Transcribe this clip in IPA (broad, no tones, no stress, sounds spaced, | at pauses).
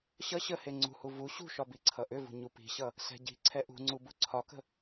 ɕ ʌ ɕ ə h e ŋ͡ǀ ṳ h u v u ɕ ṳ ʃ ɒ b i ǀʰ ʌ ʔ ʏ v ṳ ɲ u p i̤ ɕ ʌ | s ɛ̤ ɟ i̤ ǀʰ ɛ ʔ ṳ ŋ͡ǀ u b u ǀʰ ɒ k ə̤